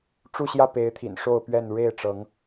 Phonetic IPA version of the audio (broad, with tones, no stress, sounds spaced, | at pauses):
ʈ͡ʂ u˥˨ ɕ j ä˥˨ p e˨˦ ɪ̯ t̪ʰ ḭ˨˩ n ʂ o˥˨ ʊ̯ p ɥ ɛ˥˨ n ɻ e˥˨ ɪ̯ ʈ͡ʂ ɤ˨˦ ŋ